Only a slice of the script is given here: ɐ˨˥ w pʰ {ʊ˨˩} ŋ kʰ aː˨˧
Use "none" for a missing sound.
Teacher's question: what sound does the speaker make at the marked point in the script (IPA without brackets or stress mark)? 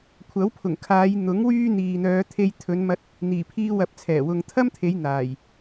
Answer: ʊ˨˩